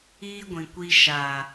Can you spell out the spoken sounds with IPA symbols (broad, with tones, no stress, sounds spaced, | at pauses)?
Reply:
iː˦ ɡʷ ĩ˨ kʷ i˧ ʃ a˨